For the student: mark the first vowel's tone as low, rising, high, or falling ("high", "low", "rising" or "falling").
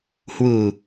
low